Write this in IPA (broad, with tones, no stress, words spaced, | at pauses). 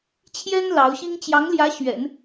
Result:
t͡ɕʰjɛ˥n lɑ˧˥ʊ̯ɕi˥ŋ t͡ɕjɑ˧˥ŋljä˧˥ ɕɥɛ̰˨˩˦n